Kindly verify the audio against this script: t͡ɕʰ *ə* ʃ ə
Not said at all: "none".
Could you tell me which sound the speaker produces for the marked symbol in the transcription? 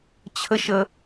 ə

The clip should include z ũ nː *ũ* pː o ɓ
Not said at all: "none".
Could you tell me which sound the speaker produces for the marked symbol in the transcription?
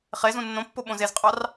õ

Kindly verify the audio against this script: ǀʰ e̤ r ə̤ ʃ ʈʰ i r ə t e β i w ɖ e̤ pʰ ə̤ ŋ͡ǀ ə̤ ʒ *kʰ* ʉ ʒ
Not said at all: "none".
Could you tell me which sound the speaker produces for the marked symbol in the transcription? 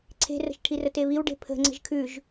kʰ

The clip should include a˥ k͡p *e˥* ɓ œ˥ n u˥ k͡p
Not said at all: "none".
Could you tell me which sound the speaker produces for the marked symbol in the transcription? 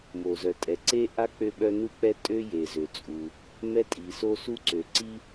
ø˥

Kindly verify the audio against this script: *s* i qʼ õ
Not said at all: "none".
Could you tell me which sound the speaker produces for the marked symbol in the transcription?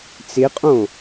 t͡s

